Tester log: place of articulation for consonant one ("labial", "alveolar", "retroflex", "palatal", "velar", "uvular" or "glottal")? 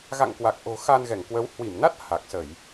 velar